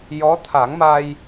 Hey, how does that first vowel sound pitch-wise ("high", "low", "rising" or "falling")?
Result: rising